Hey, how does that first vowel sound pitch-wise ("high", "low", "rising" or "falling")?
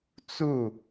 falling